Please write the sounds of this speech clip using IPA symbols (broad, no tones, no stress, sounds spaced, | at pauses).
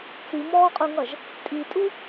t͡s i m ɔː qʼ u ŋ ʌ ʒ | tʼ i tʼ u